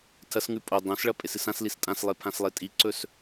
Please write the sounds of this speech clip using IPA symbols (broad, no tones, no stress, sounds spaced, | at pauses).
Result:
tʰ ɐ s ŋ ʉ pʼ o dˤ õ s ɭ ɐ pʼ e s ɨ s ã s l i s tʼ ã s lˠ e pʰ ã s lˠ e tʼ i ǀ ɵ s